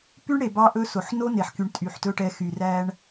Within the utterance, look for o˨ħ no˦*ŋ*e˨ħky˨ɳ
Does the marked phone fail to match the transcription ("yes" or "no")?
yes